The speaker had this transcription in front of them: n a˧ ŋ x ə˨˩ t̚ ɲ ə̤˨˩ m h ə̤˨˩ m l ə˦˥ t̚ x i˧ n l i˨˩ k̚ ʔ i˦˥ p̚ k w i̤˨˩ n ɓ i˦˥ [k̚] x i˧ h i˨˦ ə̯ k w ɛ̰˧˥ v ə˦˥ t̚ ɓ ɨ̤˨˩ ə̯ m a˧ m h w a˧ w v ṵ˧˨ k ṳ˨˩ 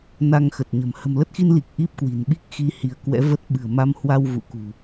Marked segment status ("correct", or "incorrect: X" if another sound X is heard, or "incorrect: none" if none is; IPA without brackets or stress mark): correct